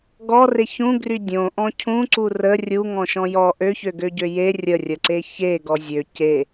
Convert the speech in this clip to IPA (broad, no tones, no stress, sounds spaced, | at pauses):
ɡ ɔ r e ç ũ ɡ r y dʲ õ ʔ ɔ̃ cʰ ũ ǀ u r ə rʲ u ŋ ɔ̃ ʃ ɔ̃ j ɔ ʔ ø ç ø ɡ ø ɟ ø j e rʲ ə rʲ ə ǀ e ç e ɡ ɔ zʲ ø c e